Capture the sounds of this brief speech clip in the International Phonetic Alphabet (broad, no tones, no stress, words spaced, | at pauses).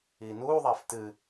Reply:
iːnuː ðˤæftɨ